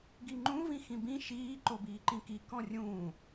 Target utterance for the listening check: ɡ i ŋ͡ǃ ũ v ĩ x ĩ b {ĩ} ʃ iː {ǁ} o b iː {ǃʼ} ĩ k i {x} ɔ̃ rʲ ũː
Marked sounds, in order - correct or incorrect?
correct, incorrect, incorrect, incorrect

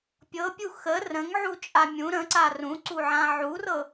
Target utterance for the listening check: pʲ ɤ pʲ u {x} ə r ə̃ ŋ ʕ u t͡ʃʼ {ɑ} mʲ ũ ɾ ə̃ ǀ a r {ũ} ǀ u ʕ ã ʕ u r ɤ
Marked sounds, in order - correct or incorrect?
correct, incorrect, correct

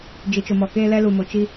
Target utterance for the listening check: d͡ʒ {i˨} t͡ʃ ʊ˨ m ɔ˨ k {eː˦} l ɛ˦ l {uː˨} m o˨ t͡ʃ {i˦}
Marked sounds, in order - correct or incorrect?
correct, correct, incorrect, correct

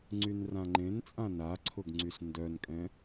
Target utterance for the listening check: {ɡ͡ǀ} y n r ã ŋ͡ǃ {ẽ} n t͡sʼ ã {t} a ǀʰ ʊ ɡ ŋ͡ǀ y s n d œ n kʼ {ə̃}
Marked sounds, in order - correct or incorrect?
incorrect, correct, incorrect, incorrect

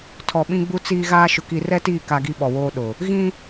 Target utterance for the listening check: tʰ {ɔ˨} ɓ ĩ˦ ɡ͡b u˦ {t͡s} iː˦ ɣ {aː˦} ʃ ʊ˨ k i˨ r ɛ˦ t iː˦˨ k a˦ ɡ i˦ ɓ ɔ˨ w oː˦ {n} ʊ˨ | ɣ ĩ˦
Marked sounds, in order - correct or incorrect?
correct, correct, correct, incorrect

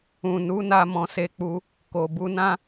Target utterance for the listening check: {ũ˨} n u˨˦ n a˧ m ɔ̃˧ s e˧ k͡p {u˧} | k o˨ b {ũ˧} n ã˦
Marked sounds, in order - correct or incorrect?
correct, correct, incorrect

